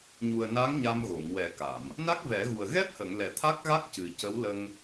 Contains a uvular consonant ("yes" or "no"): no